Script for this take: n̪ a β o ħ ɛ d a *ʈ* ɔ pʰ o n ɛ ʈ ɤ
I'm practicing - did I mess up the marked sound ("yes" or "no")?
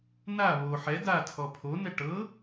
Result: yes